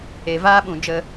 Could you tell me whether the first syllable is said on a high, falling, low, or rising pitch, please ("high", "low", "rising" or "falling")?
low